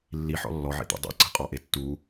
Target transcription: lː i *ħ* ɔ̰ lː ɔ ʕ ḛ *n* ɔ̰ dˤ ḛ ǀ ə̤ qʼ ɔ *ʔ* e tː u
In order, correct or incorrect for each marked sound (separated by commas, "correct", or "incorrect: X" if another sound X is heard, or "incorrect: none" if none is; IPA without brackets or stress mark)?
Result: correct, incorrect: d̪, correct